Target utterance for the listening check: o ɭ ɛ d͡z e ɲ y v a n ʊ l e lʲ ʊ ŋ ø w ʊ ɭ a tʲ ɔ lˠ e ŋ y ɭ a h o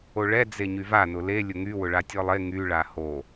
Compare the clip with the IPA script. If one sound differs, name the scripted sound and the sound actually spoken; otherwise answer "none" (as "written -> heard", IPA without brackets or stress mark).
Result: ø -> y